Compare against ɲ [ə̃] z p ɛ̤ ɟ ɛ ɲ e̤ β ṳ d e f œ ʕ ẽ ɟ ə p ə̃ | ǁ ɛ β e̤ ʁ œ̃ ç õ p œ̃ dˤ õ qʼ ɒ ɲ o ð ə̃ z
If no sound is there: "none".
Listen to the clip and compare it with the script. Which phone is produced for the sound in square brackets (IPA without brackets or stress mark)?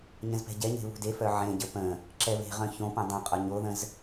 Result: ə̃